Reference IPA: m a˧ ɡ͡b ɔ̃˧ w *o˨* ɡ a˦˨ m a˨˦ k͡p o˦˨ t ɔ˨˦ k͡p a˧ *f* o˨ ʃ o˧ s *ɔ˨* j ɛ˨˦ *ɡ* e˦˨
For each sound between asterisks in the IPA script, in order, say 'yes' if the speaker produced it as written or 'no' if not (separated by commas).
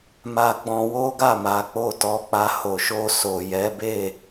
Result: no, no, no, no